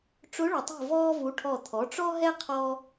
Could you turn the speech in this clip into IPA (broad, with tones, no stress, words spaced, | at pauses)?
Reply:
ʈ͡ʂʊ˧˥ɭʊ˨tˤṳ˦˨ vɔː˥vu˧˥ʈʰɔ˦˨ t̪ʰɔ˩˥ʈ͡ʂɔ˥ɦɛ˥ qʰɔ˥